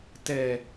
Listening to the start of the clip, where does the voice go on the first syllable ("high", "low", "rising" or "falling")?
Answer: low